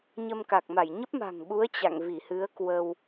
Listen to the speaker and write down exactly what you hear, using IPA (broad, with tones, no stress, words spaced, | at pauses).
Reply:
ɲə˧mka˨˩k̚ma˧˩j ɲə˦˥p̚ma̤˨˩ŋɓu˨˦ə̯ t͡ɕa̰˧˨ŋvi˧˩ hɨ˨˦ə̯kwə˧w